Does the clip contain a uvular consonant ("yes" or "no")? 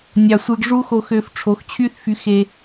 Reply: no